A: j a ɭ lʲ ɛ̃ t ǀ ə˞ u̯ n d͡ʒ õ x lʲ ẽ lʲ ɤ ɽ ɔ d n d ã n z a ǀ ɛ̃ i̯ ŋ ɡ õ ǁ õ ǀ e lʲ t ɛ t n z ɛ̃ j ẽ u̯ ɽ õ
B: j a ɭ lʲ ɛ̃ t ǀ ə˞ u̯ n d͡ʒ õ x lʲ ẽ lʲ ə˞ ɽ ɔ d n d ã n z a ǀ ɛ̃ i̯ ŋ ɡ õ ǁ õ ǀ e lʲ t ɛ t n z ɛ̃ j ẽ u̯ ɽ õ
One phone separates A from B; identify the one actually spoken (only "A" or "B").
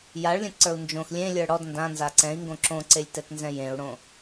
B